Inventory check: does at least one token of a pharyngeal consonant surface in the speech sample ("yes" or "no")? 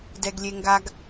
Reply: no